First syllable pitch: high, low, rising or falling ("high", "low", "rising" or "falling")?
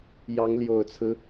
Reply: rising